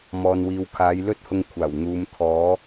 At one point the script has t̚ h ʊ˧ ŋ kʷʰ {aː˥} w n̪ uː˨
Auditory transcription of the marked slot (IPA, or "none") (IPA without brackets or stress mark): aː˨˩